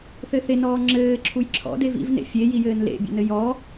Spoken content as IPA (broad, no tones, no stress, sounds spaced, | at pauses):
θ ɘ θ e n ɔː ŋ͡ǁ ɘː ǁʰ u j ǁʰ ɔ̰ d e v ḭ v n ḛ fʲ e j i j ɘː n l ḛ bʲ ḛ n ɘ j ɔ